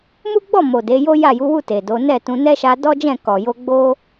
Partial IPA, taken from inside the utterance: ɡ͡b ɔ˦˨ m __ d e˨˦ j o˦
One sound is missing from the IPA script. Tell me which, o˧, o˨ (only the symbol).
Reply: o˨